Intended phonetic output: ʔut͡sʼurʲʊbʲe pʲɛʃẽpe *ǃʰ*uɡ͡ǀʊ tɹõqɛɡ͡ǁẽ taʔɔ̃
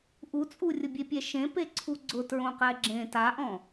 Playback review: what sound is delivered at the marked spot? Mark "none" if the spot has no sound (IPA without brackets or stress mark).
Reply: ǀʰ